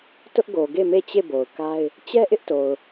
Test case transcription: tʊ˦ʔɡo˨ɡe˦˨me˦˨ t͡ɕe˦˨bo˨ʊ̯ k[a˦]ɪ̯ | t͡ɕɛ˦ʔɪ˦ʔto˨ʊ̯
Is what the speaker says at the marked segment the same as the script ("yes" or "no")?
yes